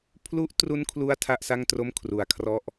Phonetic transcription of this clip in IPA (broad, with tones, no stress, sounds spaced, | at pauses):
pʰ l u˦˥ ʔ t r u˦˥ n kʰ l u˥˩ a̯ tʰ a˥˩ ʔ s a˥˩ ŋ t r o˥˩ m kʰ r u˧ a̯ kʰ r ɔ˥˩ ʔ